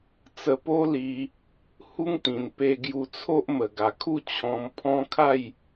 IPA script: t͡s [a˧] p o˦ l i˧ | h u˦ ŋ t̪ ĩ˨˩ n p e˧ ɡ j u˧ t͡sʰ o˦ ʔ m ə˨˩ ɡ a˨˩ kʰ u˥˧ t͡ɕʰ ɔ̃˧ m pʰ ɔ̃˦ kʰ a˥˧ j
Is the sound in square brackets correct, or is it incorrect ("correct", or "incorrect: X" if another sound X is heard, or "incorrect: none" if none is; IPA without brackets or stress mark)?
incorrect: ə˧